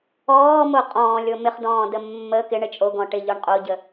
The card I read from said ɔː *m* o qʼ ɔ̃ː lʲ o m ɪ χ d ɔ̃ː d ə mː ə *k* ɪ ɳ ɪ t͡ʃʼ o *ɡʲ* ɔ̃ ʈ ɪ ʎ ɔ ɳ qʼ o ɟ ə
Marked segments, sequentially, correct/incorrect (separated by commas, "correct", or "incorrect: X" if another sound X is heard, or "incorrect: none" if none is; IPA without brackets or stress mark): correct, correct, incorrect: ɡ